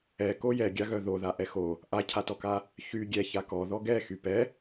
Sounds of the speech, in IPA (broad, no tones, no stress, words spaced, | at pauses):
ɛko jɛɡʲaɣœ ðoða ʔɛxo | ʔacʰatɔka | çy ɡʲɛça kɔ ðɔɡɛxy pɛ